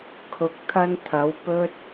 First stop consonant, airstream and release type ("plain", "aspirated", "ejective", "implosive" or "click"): aspirated